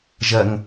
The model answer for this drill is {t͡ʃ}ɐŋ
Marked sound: incorrect: ʒ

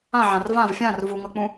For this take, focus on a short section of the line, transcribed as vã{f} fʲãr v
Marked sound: incorrect: v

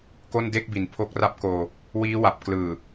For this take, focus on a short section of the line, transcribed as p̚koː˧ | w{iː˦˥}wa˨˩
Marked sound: correct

